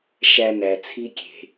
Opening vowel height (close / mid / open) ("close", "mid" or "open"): open